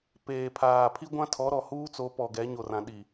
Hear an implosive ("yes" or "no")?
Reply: yes